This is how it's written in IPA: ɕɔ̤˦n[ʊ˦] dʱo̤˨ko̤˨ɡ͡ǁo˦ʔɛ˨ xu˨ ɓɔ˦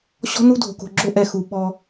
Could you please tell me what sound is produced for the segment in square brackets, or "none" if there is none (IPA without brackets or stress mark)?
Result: u˦